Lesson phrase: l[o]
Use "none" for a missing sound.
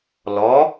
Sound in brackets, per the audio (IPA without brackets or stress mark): ɔ